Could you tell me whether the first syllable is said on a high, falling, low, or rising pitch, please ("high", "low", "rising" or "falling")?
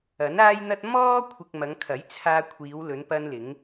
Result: rising